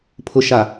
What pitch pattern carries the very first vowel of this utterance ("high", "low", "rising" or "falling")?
low